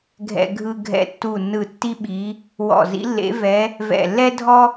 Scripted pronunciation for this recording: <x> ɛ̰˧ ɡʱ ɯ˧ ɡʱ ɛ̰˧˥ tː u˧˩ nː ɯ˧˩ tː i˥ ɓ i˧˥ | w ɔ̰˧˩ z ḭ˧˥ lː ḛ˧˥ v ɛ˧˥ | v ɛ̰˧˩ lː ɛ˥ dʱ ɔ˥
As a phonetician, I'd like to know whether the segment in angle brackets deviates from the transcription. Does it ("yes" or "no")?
yes